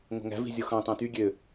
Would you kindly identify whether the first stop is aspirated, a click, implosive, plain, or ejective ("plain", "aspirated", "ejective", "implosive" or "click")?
plain